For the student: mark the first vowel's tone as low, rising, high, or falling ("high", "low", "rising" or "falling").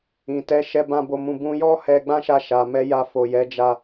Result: low